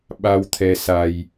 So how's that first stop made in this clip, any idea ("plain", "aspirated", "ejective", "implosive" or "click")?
implosive